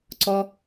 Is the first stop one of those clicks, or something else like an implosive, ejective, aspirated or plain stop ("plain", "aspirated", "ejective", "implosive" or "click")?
click